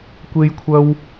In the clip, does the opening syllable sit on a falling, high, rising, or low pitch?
high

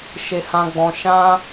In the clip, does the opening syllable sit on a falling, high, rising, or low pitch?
high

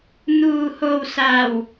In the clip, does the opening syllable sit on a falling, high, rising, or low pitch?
low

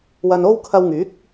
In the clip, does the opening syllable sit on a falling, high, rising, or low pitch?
low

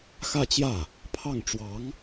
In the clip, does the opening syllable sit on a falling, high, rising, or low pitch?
falling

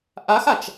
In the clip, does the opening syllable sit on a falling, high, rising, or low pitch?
rising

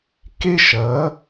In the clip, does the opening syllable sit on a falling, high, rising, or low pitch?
high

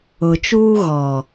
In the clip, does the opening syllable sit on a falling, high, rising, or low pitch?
low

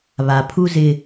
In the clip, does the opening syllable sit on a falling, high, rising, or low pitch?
low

